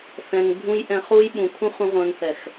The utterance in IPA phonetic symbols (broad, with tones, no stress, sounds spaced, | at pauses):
θ ɛ̃˧ ŋ bʱ ũ˦ j ʔ ɛ̃˧ χ u˦ j ɓ ũ˨ kʷʰ ə̃˦ χʷ ə̃˧ ʁʷ ə̃ː˧ ŋ θ ɛ˨ x